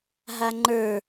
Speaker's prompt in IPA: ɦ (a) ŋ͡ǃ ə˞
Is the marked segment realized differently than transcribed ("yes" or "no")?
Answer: no